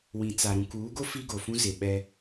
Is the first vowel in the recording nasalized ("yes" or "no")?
yes